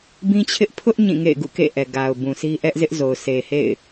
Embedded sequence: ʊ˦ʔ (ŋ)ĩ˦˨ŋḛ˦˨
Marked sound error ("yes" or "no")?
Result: yes